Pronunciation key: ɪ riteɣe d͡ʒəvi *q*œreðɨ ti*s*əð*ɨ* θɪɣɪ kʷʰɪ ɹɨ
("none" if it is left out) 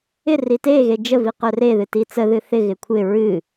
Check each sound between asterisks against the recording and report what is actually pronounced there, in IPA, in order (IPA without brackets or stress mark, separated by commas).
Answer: q, t͡s, ɨ